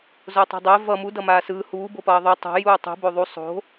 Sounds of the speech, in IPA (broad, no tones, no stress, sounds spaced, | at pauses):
z o tˤ ɛ̤ dˤ ɛ v ʌ m u d ʌ m aː s ɯː h uː b o p ʌː ðˤ u tˤ o̤ j uː tˤ ṳ b o ðˤ u sˤ o̤